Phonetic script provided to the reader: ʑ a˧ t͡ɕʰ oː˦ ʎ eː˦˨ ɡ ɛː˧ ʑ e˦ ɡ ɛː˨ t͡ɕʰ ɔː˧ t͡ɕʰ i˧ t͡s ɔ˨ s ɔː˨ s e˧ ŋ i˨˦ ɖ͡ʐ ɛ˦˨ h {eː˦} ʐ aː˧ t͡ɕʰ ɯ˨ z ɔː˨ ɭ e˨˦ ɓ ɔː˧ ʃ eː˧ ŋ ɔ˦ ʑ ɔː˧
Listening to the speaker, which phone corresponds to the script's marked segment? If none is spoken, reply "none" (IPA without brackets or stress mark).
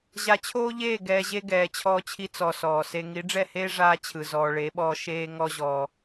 eː˦